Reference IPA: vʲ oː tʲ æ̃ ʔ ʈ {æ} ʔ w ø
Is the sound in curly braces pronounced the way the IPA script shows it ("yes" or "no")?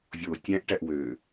yes